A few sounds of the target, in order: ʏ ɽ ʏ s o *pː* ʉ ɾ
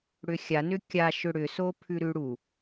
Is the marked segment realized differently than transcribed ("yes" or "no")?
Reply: yes